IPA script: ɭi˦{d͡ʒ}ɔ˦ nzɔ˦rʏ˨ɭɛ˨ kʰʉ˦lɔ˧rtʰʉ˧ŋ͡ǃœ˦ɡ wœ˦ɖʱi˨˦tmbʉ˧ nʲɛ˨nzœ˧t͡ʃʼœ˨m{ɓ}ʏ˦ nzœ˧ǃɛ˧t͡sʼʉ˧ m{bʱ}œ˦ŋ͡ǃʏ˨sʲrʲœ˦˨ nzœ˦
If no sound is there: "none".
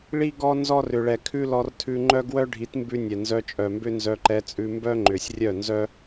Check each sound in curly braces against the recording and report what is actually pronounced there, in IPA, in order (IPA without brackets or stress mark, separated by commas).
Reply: ɡ, b, b